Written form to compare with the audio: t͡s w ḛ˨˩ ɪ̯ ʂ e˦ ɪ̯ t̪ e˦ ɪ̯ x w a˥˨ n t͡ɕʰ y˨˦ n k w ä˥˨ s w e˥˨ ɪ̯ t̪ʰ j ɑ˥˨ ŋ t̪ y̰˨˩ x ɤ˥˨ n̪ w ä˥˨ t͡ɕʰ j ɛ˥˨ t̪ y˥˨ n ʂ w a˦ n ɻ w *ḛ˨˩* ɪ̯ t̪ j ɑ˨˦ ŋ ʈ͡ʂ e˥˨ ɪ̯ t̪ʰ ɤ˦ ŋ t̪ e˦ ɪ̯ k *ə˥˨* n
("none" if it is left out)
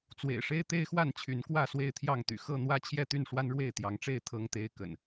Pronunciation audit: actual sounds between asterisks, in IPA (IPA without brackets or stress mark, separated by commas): e˥˨, ə̰˨˩